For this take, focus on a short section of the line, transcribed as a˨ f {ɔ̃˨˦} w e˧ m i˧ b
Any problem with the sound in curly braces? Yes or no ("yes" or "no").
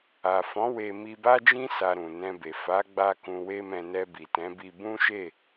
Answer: no